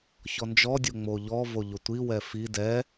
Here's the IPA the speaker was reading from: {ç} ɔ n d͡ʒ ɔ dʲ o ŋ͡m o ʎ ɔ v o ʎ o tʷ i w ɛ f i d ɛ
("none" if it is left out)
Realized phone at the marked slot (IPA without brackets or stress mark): ç